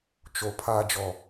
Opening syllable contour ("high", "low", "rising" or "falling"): low